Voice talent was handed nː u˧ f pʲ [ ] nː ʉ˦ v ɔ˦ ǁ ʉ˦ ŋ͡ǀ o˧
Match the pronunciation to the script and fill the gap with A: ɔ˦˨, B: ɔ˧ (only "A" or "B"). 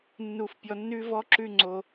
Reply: B